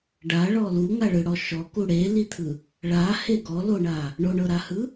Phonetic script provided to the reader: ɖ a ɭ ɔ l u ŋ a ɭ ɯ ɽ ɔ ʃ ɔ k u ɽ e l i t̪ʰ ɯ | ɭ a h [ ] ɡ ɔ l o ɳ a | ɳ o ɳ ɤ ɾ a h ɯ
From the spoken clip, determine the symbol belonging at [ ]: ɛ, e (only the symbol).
e